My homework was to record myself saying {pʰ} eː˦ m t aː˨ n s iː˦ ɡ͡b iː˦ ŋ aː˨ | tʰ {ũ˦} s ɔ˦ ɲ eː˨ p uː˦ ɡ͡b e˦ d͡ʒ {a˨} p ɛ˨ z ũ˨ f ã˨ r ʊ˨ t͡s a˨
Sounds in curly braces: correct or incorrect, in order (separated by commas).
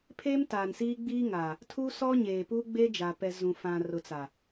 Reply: correct, incorrect, correct